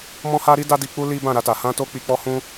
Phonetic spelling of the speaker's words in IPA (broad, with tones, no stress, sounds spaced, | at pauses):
m ɔ̃˦ h a˦ ɾ i˦ d a˦ d i˧ k͡p u˦ l i˦ b ã˦˨ ɾ a˧ t a˨ h ã˧ t o˧ k͡p i˧ k͡p ɔ˦ h ũ˦